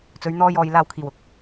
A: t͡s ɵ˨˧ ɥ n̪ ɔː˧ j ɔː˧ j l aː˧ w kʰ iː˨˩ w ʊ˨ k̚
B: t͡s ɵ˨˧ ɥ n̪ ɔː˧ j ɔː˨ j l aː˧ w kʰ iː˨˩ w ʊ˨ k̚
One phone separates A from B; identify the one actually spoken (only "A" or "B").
B